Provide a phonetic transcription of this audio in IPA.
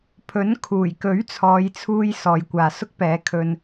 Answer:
pʰ ɵ˨˥ n kʰ uː˨˩ j k ɵ˨˥ ɥ t͡sʰ ɔː˨˧ j t͡sʰ uː˧ j s ɔː˨ j kʷ aː˨ s ʊ˥ k̚ p ɛː˨˧ kʰ ɵ˧ n

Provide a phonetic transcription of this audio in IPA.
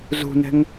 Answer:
z ṳ n ɛ̤ ŋ

